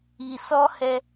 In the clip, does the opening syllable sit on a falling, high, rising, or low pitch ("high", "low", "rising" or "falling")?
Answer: low